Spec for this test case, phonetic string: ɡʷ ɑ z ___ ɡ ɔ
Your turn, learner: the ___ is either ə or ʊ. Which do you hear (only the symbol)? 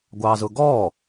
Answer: ʊ